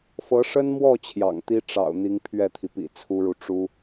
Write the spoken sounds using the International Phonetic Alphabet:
f ɤ˧˥ ʂ ə˥ n m w ɔ˥˩ t͡ɕʰ j ɑ̰˨˩ ŋ t̪ i˥ ʈ͡ʂ ɑ̰˨˩ ʊ̯ n̪ i˧˥ ŋ pʰ ɥ ɛ˥˩ t̪ʰ i˩ p ḭ˨˩ t͡sʰ u˥ ɻ u˨ ʈ͡ʂ u˥

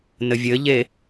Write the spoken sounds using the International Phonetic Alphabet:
n ɘ vʲ ɘ ʎ e

